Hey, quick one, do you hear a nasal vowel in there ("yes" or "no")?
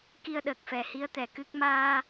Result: no